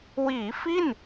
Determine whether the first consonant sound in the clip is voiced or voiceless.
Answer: voiced